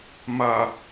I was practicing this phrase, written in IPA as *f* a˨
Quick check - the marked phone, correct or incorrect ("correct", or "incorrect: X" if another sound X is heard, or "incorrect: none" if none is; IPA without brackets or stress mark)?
incorrect: m